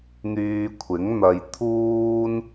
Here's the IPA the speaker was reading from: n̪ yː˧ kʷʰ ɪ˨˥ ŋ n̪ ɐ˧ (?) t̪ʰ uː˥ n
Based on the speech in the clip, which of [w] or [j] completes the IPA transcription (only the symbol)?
j